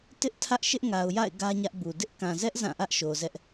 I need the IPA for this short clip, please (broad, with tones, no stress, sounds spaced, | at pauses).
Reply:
t ɪ˦ ʔ tʰ ä˦ ʔ ʃ ɪ˦ ʔ ŋ a˨ ʊ̯ j a̰˦˨ ɪ̯ ɡ ä˦ ɲ ä˦ ʔ b u˨ d ɪ˦ ʔ k ã˨ z ɛ˦ ʔ z ã˦˨ ʔ ä˦ ʔ ʃ o˨ z ɛ˦ ʔ